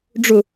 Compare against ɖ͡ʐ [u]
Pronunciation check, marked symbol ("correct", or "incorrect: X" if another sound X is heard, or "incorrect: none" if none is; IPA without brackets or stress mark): incorrect: ʊ